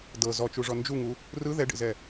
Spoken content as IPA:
d ɤ z ɔ t͡ʃ u ʐ ɔ n d͡ʒ u ŋ u | r ɯ ð ɛ ɖ ḛ z ɛ

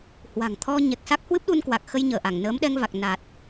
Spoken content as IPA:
h w a̤˨˩ ŋ t̪ʰ ɔ˧ ɲ ɛ˨˩ k̚ s a˦˥ k̚ h w ɨ˦˥ p̚ ɗ u˧ n k w a˨˩ k̚ x ə˧ j ɲ əː˧˩ ʔ a˧˩ ŋ n əː˨˦ m ɗ ɛ˧ ŋ v a˨˩ k̚ n a˨˩ t̚

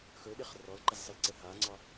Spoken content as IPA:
x ɵ ɗ ɪ χ r ɔ l ǃ ɪ z sˤ ə l ǀ ə h a ŋ͡ǀ ɒ

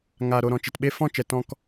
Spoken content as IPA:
ŋ aː˨ ɾ o˨ ɾ ɔ̃˨ t͡ʃ e˨ t ɓ e˧ f ɔ̃˦˨ t͡ʃ ɛ˨ t ɔ̃˦ k

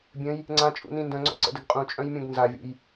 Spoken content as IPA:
bʲ ə̃ j | ŋ͡ǀ ã t͡ʃʼ ṵ n ĩ n d œ̃ ŋ͡ǀ ɔ̰ ǀ ə̰ d ə ɡ qʼ ũ t͡ʃʼ œ̃ j mʲ ũ ɡ n z a vʲ ṵ j

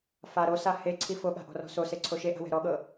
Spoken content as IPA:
f a ɾ o s a h e ǀʰ i f o ɠ a̤ ʔ ɔ̤ r ɔ̤ s o s e ǀʰ o ʃ e ʔ a̤ w ɛ̤ ɾ ɔ ɠ ɤ

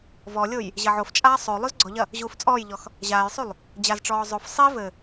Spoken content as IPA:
v ɔ lʲ o j | ʑ ɐ ʕ o f t͡ʃʼ aː sˤ o lˠ u z ɡ͡ǀ ɔ ʎ ɐ | ʑ uː f t͡sʼ ɔː j ʎ ɔ x | ʑ aː j sˤ u lˠ | d͡ʑ a z ʈ͡ʂ ɔː zˤ o f sˤ i v ɘ

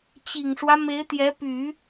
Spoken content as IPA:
t͡ɕ i˨˩ ŋ ʂ w ä˦ m e˧˥ ɪ̯ t̪ j ɛ˧˥ p y˨˩˦

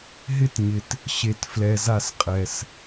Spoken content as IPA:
ɦ ɪ˦ t ɲ ɪ˨ t | ɕ e˨ t f l ɛ˨ z a˦˨ s qʼ ɛ˨ s

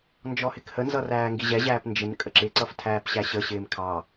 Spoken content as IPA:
n d͡ʒ ɔ h ɪ k h ə n z ʌ r æː ŋ ɡ i ʑ ɛ ʑ æː p n d͡ʒ ɪ n kʼ ə ǁ ɪ ǀ ʌ f tʰ æː p ɕ æ ɕ ə ɕ ɪː m kʰ ɑ

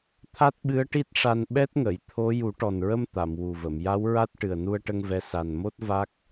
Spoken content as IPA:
t̪ʰ a˦˥ t̚ ɓ ɨ˧˥ ə̯ ʈ i˦˥ t̚ ʂ a˧ n ɓ ɛ˦˥ t̚ ŋ ə˨˩˨ j t̪ʰ o˧˥ j u˨˩˦ ʈ ɔ˨˩ n ɹ ə˧ m t̪ a˨˩˨ m w u˨˩ v ə˨˩˨ m j a˧˥ w ɹ a˦˥ t̚ ʈ ɨ˨˩ ə̯ n u˧ ə̯ ʈ ə˧ ŋ v ɛ˧˥ s a˨˩ n m o˦˥ t̚ v a˦˥ k̚

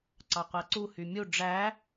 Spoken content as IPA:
ǀ ɑ qʷ æ ǀ u h y mʲ u ɖ͡ʐ æ

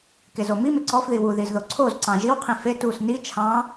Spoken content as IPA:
k e z o m i m e ǀ ɔ f ð i w u ð i z ð o ǀʰ o z ǀ ɑ̃ ʒ i w qʰ ĩ f e t u s n i t͡ʃʰ ɑ̃

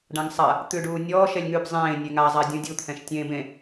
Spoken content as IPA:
ɖ ã ŋ sˤ a | t̪ ʉ ɖ uː nʲ ɔː ʃ ɛ lʲ ŋ ʉ b zˤ ẽː nʲ e ŋ a zˤ a dʲ ũ dʲ u t̪ʰ ɛ̃ ʃ tʲ ẽː b ẽ

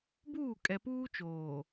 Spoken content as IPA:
b uː˦˨ kʼ ɛ˨ p uː˦ t͡ʃ oː˨

